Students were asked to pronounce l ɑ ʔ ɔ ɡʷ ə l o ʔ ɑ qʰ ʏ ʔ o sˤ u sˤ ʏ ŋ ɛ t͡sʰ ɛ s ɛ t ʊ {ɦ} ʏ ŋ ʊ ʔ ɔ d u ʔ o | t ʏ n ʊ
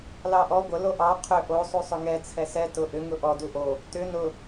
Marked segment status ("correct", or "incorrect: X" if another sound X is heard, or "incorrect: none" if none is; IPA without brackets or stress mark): incorrect: ʔ